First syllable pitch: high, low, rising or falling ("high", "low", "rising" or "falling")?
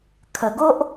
low